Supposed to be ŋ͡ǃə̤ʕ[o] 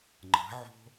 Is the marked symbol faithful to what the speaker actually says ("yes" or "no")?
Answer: no